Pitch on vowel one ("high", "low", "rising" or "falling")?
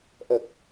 low